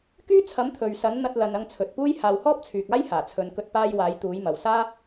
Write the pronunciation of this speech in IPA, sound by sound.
k yː˥ t͡sʰ ɐ˨˥ m t̪ʰ ɵ˨ ɥ s ɐ˨˥ n n̪ ɐ˧ t̚ l ɐ˨ n ɐ˧ ŋ t͡sʰ ɵ˨ t̚ p uː˥ j h aː˨ w h ɔː˥ p̚ t͡sʰ yː˨ k̚ aː˥ j h aː˨˩ t͡sʰ ɵ˨˧ n k ɵ˧ t̚ p aː˧ j w aː˨˥ j t̪ uː˨˥ j m ɐ˨ w s aː˥

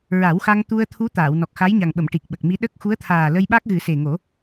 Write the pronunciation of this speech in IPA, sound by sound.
ɹ a˨˩˦ w x a˧ ŋ t̪ u˧ ə̯ t̪ʰ u˧˥ t̪ aː˨˩˨ w n ɔ˨˩ k̚ x a˧˥ j ɲ a˨˩ ŋ ɓ ə˨˩˨ m ʈ i˨˩ k̚ ɓ ə˨˩ k̚ m i˧˥ ɗ ə˦˥ k̚ x u˧˥ ə̯ t̪ʰ aː˨˩ l ə˧ j ɓ a˦˥ k̚ ɣ ɨ˨˩˦ s e˨˩ ŋ o˨˩˦

